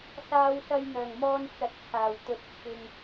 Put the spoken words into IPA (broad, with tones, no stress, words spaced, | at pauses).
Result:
saː˧wsɐ˧j n̪œː˨˩ŋmɔː˧n t͡sɐ˨t̚t͡sʰaː˨˩w t̪ɵ˧t̚t͡sʰɪ˧ŋ